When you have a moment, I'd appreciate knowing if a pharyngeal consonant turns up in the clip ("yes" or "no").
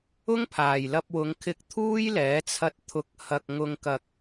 no